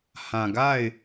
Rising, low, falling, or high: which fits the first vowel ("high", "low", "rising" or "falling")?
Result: low